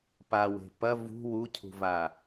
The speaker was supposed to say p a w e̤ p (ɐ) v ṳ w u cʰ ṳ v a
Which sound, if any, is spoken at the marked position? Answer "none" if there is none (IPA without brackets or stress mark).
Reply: ɐ